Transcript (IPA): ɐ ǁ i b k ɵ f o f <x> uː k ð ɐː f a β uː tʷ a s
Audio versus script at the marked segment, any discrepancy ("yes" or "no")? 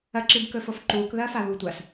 yes